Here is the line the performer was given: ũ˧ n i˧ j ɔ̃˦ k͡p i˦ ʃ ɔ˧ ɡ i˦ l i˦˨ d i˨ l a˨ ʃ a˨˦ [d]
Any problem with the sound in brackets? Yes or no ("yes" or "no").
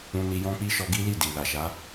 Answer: yes